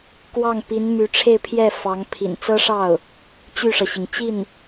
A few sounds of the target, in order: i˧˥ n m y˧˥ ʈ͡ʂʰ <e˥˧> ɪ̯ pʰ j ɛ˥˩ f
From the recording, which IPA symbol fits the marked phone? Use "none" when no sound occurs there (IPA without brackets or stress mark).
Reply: e˥˧